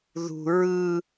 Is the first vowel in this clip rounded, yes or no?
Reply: yes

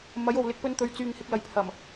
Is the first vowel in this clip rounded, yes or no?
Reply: no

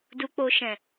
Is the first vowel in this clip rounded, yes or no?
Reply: yes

